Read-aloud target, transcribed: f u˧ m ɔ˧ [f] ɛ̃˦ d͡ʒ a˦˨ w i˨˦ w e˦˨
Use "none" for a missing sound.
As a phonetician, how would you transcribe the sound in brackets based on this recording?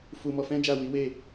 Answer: f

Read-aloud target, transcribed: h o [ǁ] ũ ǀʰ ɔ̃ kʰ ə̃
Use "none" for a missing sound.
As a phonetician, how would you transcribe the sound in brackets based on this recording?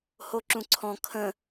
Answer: ǁ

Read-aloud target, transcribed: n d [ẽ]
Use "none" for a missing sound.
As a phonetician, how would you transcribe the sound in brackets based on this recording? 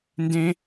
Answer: ẽ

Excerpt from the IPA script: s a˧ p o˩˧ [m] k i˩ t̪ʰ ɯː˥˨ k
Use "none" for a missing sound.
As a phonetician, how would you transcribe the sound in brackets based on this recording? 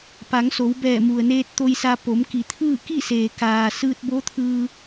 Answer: m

